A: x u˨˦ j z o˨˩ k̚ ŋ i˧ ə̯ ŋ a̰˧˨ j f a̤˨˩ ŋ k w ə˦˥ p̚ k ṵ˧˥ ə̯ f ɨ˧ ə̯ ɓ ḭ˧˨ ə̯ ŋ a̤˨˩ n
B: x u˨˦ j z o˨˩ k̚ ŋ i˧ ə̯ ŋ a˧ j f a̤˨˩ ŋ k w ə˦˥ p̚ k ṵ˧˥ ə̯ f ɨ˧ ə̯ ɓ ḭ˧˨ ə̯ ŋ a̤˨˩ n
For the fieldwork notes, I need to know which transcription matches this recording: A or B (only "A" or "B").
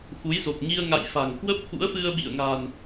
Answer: A